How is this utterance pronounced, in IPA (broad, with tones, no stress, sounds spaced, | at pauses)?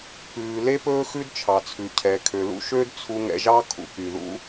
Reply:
p ʉː˩ l e˥ p ɵː˥ x ʉ˥ d t͡ʃʰ ɑ˩ t͡sʰ ʉ˩ cʰ ɛ˩ kʰ ø˩ l ṵ˥ ʃ ø˥ d t͡sʰ u˧ ŋ ɛ̰˧ ʒ ɑ˥ kʰ ṵ˧ k y˩ ð ṵ˥